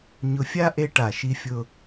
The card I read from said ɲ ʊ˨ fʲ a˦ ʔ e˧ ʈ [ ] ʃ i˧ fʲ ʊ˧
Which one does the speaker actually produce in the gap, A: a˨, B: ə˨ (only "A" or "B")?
A